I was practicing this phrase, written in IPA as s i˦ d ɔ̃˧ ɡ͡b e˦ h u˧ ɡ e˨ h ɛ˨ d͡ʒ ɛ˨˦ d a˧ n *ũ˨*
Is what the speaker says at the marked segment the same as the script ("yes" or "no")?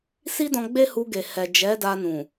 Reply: yes